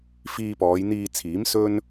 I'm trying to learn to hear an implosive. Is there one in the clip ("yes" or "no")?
no